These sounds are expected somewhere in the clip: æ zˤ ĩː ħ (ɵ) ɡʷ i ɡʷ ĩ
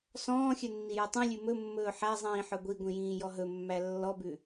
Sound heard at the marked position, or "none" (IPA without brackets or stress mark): œ